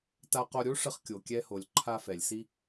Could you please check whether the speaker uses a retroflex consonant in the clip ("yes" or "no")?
yes